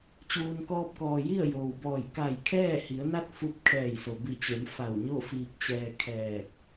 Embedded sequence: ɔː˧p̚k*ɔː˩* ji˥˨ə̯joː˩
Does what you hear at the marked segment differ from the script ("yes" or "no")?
no